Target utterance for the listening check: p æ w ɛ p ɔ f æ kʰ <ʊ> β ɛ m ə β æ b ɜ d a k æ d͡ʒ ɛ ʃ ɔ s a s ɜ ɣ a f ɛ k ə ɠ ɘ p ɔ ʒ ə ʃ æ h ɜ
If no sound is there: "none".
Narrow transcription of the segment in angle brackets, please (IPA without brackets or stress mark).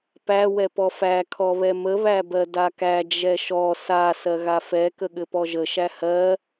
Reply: ɔ